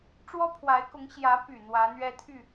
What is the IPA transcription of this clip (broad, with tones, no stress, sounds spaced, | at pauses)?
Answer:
ʈ͡ʂ w ɔ˥ pʰ w a˧˥ ɪ̯ k ʊ˧˥ ŋ ɕ j ä˧˥ p y˨˩ n̪ w ä˧˥ n̪ ɥ ɛ˥ t̪ʰ y˥˩